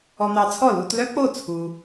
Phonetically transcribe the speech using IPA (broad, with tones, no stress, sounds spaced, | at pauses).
ɔ˧ n̪ ɑ˧ t͡sʰ ɔ˥˩ l u˧ t l œ˥ k͡p o˥˩ t͡sʰ u˧